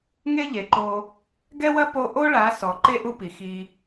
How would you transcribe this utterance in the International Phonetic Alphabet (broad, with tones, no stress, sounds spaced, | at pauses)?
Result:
ŋ e˦ ʎ e˨ ǃ o˧ | ɡ ɛ˦ w ɐ˦ p o˧ ʔ o˦ ɭ a˨˦ s ɔ˨ ǃ e˦ ʔ u˧ p i˨ x i˧